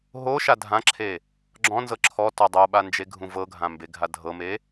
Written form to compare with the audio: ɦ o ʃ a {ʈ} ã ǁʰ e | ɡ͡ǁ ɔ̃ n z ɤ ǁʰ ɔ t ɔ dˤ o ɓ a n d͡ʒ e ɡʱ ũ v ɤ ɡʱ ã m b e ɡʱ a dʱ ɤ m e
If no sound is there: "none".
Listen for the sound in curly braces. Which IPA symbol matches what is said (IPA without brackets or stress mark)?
dʱ